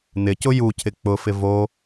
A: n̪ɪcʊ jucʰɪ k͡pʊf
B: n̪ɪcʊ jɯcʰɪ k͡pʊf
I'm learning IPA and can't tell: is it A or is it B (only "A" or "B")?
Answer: A